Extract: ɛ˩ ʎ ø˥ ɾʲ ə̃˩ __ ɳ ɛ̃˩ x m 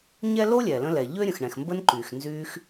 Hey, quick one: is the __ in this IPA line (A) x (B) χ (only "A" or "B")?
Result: A